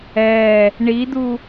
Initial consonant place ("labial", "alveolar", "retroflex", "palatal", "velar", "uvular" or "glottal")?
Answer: retroflex